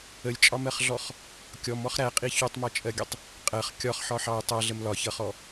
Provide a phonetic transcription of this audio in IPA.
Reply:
ə lʲ t͡ʃʼ ɒ m ɜ χ ɮ ɔ χ | kʲ ɔ m ɔ χ ɾ æ qʼ i ç u tˤ m ɒ t͡ʃʼ ɜ ɡʲ ə tˤ | qʼ ɜ χ kʲ ɒ χ ħ ɒ ħ ɑ j tˤ ɜ ɮ ə m l ɒ ç ʌ χ ɔ

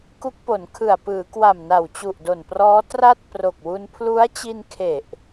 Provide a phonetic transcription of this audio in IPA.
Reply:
k u˦˥ k̚ p o˩˦ n kʰ ɯ˨˩ a̯ p ɯː˩˦ k w a˨˩ m n a˨˩ w t͡ɕ u˨˩ ʔ d o˨˩ n p r ɔː˦˥ t r a˥˩ t̚ p r o˨˩ k̚ w u˧ n pʰ l u˦˥ a̯ t͡ɕ i˧ n kʰ e˨˩ ʔ

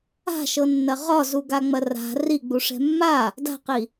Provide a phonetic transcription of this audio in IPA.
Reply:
a̤ ʃ ɤ nː ɐ ʁ ɒ z u ɡ a ŋ͡m ɐ r a̤ r i ɡ͡b u ʂ ɛ̤ mː a | d a̤ q i

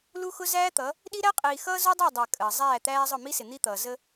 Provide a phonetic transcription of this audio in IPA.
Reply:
l u˦ x ʊ˦ z æː˦ t̪ ʌ˨˦ | ɗ i˦ ɾ æ˦ qʼ iː˨ x ʌː˦ z u˦ dˤ ɑ˦˨ dˤ æ˨ kʼ əː˨ zˤ æː˦˨ t̪ æː˦ zˤ ʊ˦˨ m i˦ s ɪ˨ n̪ i˦ t̪ ʌː˨ z ə˦

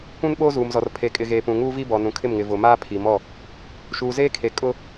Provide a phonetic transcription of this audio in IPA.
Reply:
kʷ ũ˦ n ɓ oː˦ z uː˨ m z ɔ˨ r pʰ e˨ kʼ ɪ˨ ɣ eː˨ p ũ˨ ŋ uː˦ v i˦ b ɔ˨ n ũ˨ kʰ ɪ˦˨ m ŋ ɪ˨ v ʊ˨ m aː˦ pʰ i˨ m ɔ˦˨ | ʃ uː˨ z eː˦ kʰ e˨ kʼ ʊ˦

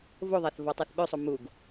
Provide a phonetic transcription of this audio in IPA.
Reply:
v o ðˤ æ θ v ɔ tˤ æ θ ɓ ø sˤ o m u ɡ

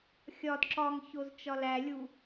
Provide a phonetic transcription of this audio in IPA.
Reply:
xʲ ɒ d ǁ ɒ ŋ ç o z t͡ʃ ɒ l æ lʲ u

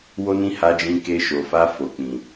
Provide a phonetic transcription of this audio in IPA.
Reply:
w o˧ n ĩ˧ h a˧ d͡ʒ ĩ˧ k e˧ ʃ o˨ f a˧ f o˨ k͡p ĩ˨

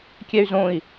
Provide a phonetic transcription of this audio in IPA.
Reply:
kʲ ɛ y̯ z õ i̯

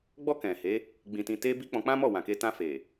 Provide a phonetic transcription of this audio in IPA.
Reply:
ɡ͡b ɔ˧ k ɛ̃˨ h e˨˦ | ɡ͡b ĩ˨ t ĩ˨ t e˧ b i˦ k͡p ɔ̃˧ k͡p ã˦ m ɔ˦˨ w ã˨ k e˧ t ã˧ f e˨

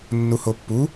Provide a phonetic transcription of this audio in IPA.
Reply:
nː u h o pː u

